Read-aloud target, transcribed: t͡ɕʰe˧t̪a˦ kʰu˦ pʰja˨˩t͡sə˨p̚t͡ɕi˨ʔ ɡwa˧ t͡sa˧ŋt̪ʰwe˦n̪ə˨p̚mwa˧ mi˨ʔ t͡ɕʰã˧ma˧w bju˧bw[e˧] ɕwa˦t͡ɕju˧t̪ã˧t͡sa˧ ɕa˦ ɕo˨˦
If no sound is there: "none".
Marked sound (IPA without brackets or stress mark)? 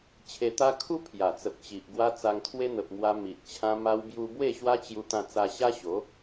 e˥˧